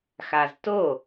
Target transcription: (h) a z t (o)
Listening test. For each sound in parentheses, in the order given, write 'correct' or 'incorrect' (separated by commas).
incorrect, correct